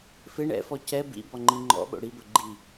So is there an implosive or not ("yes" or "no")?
yes